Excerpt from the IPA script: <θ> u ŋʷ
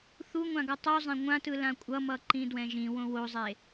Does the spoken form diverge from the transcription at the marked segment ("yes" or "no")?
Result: no